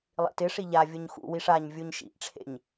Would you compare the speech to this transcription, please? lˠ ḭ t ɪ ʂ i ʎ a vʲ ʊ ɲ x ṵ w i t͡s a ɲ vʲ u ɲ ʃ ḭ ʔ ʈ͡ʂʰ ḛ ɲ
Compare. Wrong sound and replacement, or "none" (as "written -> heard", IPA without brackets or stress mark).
t͡s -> ʂ